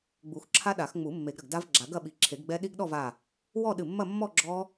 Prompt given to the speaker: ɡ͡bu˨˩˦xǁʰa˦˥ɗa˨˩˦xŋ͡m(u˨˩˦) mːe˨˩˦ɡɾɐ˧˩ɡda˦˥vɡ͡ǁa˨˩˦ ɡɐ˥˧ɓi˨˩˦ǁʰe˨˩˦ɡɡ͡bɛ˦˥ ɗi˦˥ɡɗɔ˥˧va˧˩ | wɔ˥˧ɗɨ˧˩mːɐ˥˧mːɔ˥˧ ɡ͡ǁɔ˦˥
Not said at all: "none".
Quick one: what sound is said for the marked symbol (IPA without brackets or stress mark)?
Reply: u˨˩˦